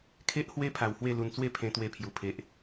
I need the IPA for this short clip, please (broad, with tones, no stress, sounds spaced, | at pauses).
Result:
kʰ e˦ ʔ h w e˦ pʰ a˧ w h w e˥˧ l u˧ n t͡s w e˥˧ pʰ ẽ˧ t̪ w e˧ pʰ j u˨˩ pʰ e˨ ʔ